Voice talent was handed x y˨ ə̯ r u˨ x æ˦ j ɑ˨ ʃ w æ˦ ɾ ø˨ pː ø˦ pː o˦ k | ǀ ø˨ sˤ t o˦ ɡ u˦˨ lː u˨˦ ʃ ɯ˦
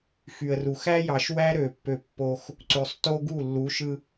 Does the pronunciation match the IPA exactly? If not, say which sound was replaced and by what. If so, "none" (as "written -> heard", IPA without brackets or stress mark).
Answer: k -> x